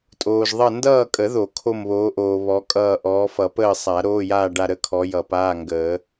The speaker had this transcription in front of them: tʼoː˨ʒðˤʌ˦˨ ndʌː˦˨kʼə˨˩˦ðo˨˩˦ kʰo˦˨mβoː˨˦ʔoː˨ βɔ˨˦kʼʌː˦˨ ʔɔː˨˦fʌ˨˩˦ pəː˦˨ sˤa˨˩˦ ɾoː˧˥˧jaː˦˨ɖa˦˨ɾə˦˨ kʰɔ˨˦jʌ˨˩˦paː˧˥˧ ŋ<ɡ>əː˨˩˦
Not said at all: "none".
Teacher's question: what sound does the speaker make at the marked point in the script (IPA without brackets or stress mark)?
ɡ